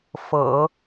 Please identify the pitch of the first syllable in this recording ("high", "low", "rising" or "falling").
low